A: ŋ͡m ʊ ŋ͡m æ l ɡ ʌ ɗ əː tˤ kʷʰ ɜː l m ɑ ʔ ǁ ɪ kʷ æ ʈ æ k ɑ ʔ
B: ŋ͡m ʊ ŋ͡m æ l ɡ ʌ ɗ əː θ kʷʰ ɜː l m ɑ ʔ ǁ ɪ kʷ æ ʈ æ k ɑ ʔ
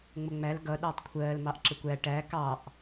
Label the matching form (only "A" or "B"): A